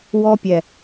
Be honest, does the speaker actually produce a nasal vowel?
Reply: no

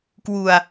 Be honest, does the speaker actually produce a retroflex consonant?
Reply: no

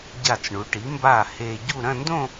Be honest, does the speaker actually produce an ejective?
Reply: no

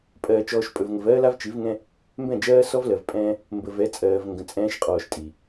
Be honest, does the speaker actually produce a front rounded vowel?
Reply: no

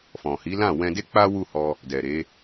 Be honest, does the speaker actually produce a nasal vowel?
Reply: yes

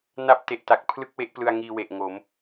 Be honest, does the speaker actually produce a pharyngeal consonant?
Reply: no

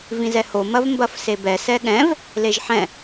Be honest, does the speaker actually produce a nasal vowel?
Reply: yes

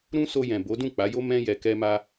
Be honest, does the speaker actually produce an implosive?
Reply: no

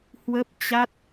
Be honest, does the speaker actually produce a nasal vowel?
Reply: no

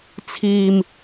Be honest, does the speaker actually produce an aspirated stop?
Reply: yes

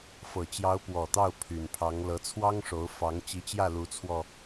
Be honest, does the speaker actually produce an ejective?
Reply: no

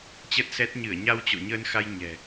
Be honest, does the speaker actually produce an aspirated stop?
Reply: no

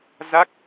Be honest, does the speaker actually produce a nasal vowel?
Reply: no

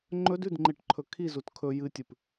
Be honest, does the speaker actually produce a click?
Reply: yes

